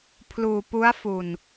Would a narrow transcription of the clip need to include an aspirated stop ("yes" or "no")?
yes